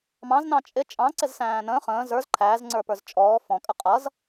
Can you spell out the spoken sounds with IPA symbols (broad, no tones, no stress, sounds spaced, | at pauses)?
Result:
m ɑ̃ z n ɑ̃ t͡ʃʼ ɪ t͡ʃʼ ɑ̃ ǀ ɪ z s æ̃ː n ə̃ː χ ə̃ː z ə˞ z ǃʰ æː z ŋ͡ǀ ə˞ p ə˞ z t͡ʃʼ ɔː f ɔ̃ kʼ ə qʼ ʌ z